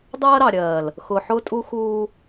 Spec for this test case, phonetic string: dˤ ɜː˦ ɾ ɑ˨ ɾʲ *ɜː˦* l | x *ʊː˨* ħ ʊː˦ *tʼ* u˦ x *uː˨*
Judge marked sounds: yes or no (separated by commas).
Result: no, yes, yes, no